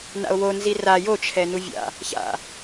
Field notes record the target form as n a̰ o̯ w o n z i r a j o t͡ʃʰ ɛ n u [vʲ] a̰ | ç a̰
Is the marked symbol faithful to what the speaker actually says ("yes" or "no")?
yes